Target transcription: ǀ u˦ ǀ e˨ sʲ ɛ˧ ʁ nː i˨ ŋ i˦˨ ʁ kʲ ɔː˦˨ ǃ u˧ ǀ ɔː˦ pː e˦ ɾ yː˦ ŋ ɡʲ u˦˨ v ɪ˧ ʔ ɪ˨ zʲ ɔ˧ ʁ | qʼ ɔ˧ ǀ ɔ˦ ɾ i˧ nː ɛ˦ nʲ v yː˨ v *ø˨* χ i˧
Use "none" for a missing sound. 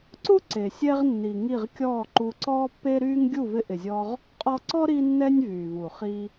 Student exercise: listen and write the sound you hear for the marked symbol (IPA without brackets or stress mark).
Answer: u˨